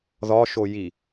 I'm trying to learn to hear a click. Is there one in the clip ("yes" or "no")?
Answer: no